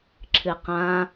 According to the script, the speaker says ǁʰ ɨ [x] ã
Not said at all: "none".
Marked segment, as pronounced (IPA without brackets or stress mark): q